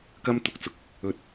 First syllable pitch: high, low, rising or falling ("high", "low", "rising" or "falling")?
high